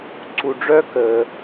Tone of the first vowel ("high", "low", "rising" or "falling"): low